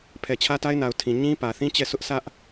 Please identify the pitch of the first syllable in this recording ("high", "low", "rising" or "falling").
low